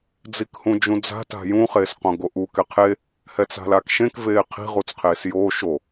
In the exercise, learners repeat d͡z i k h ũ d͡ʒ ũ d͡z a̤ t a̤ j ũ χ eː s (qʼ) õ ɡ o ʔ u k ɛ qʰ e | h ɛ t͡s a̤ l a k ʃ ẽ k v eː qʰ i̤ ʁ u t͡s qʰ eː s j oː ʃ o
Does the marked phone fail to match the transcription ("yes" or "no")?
yes